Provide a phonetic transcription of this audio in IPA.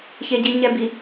ç e ɟ i ɲ ɛ b i

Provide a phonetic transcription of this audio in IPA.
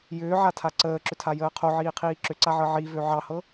j ʏː ʕ a tʰ a ǀ əː ǁ ʏ tʰ a j əː qʰ o ʕ iː qʰ iː ǁ ʏ ǀ a ʕ ɤ ʕ i v ø ʕ ɑ h ɤ

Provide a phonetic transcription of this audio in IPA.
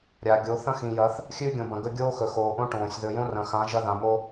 ɾʲ a˨ ɡʲ o˨˦ θ ɐ̃˦ x ĩ˨ j ɐ˨˦ θ | xʲ ʉː˦ ɡʲ õ˨ b ɐ̃˨ ɡ ɵ˦ ɡʲ oː˦ x ɵ˨ x oː˨ ʔ õ˦ ʈ õː˨ sʲ ð ɵ˨ j õ˦ r ɐ̃˨ x ã˨˦ ʒ ɐ˦ ð ã˨ m o˦

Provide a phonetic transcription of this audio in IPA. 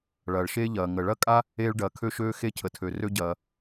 ɭ ɐː˩ ɭ ʃ eː˥ ʎ ɐː˩ ŋ ə˩ ɭ ɐ˥ kʼ a˥ | eː˥ ɭ ɖ ɐː˩ kʰ ø˥ ʃ øː˥ x e˥ cʰ ə˩ tʰ ø˩ r ø˥ ɟ ɐː˩

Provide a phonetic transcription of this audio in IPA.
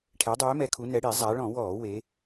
ʈʰ ɛ˩˧ dˤ øː˩˧ m ɛ˩˧ kʰ u˩˧ n ɛ˩˧ ɽ i˧˩˧ zˤ a˩˧ ɭ ɔ̃˧˩˧ w ɔː˧˩˧ w e˩˧

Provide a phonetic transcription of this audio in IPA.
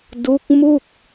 d u˦˥ k̚ m u˥˩ k̚

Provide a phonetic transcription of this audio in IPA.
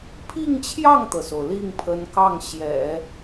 pʰ i˥˧ ŋ t͡ɕʰ j ɑ˥˩ ŋ t̪ ɤ˩ s o˩ ʊ̯ l i˥˩ ŋ pʰ ə˧˥ n k ɑ˥˩ ŋ ɕ j ɛ̰˨˩˦

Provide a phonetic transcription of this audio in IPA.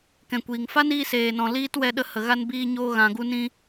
k ɛ̃˨ kʷ iː˨ ŋ f a˦ n iː˧ s eː˨ n ɔ̃˨ l iː˦ t w ɛ˧ ɗ ə˧ h ə˨ ɣ a˧ n b iː˧ ɲ oː˧ ɣ ã˨ ɡ u˧ n ĩ˧

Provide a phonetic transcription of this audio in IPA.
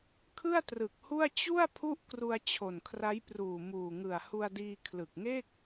kʰ ɯ˥˩ a̯ t r ɯ˨˩ k̚ h u˥˩ a̯ t͡ɕ u˥˩ a̯ pʰ u˥˩ ʔ k r u˧ a̯ t͡ɕʰ o˨˩ n kʰ r a˦˥ j p r uː˨˩ m uː˨˩ ŋ ɯ˨˩ a̯ h u˧ a̯ d iː˧ kʰ l ɯ˨˩ k̚ ŋ e˥˩ k̚

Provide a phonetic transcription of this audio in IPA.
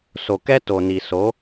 s o˨ k ɛ˦ t o˨ n i˨ s o˨˦

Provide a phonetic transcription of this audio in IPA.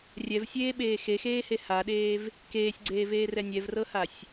rʲ ɛ v sʲ eː ɓ eː x e x eː h e h a ɗ eː v | k eː sʲ ɡ͡ǀ eː v eː r ɛ nʲ ɛ v r ɤ h a sʲ

